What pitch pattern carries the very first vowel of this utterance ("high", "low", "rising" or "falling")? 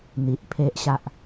low